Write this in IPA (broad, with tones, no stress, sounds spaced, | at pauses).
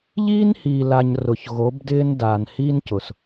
ʎ iː˦ n h iː˨ l a˨ ɲ r ʊ˨ ç ɣ o˨˦ b d ɪː˦ n d aː˨ n h iː˦ n c ʊ˨ s